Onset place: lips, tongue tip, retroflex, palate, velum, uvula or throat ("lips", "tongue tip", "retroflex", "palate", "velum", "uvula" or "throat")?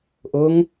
throat